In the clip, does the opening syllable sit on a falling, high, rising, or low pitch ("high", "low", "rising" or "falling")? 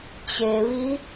low